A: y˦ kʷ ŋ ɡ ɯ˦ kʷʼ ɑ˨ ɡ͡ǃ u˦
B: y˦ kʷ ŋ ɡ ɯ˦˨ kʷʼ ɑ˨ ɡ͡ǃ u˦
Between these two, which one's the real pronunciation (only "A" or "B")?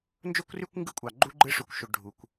B